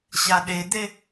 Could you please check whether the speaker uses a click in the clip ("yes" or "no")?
no